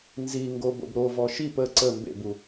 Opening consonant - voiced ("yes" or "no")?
yes